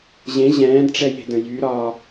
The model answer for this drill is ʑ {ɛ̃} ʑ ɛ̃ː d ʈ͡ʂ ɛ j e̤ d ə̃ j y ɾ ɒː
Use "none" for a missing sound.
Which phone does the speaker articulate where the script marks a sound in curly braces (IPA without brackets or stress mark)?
ẽ